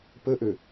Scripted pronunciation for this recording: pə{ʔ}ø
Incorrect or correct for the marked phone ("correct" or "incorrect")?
correct